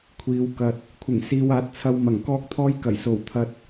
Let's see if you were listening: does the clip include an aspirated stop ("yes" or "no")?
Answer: yes